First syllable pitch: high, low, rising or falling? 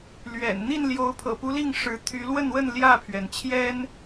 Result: low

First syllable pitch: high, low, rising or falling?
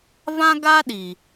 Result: high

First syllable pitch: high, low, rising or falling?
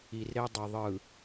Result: low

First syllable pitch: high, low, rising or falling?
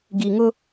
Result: low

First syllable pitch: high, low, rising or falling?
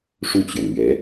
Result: falling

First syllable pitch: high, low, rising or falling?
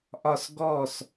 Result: falling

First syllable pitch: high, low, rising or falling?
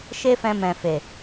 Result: high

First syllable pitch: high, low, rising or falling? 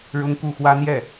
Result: high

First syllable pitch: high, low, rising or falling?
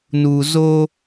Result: low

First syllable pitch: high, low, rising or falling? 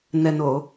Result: low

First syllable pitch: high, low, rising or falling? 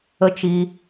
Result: high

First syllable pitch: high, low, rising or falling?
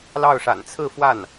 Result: falling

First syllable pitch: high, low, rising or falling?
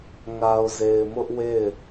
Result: low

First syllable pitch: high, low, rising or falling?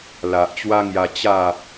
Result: low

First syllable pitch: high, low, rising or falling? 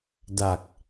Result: low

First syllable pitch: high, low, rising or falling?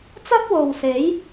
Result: high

